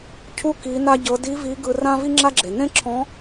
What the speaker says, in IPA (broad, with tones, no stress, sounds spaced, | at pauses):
cʰ u˧˥ k i˩˧ n a˧ ɟ ɤ˩˧ d i˧˥ v i˧˥ ɡ ɯ˧ r ã˥ v i˥ ŋ͡ǁ a˥ ɡ͡ǁ e˩ n ẽ˥ ǁʰ ɔ̃˧˥